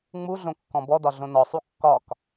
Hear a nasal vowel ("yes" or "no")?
yes